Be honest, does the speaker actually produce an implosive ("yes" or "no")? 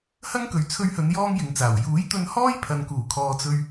no